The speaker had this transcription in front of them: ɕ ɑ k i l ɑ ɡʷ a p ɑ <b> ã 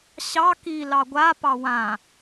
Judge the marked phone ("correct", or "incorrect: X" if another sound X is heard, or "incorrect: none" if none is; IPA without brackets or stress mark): incorrect: w